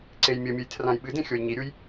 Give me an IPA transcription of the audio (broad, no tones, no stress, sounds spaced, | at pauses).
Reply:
ǀ e j mʲ ɘ mʲ ɨ j tʰ r ã j ɓ ɨ d ẽ xʲ o j ɲ i ɾʲ u j